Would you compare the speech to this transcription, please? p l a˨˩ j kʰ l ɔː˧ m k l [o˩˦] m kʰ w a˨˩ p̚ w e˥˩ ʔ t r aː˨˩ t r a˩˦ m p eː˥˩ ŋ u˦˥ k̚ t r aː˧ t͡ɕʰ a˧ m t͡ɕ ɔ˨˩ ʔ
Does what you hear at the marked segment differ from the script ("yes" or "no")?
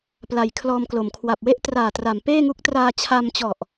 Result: no